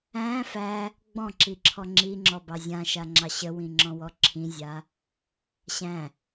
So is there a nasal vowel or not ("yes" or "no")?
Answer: yes